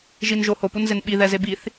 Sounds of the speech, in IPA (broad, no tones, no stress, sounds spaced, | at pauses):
ʒ i n ʒ o h o p u n z e n ɓ i ð ɛ z e b i θ